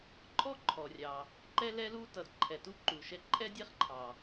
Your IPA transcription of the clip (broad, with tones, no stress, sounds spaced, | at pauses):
ǃʼ ɔ˥ ǃʰ ɔ˩ rʲ ɑ˩ | ǃ ɛ˥ l ɛ˥ l u˥ t ʌ˩ d ǃʰ ɛ˩ t u˥ ǃ u˩ ʃ ɛ˥ ǃʼ ɛ˥ dʲ ɛ˥ χ ǃʰ ɑ˩